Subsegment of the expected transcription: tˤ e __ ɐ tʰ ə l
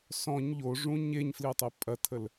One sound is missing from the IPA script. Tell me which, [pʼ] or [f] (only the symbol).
pʼ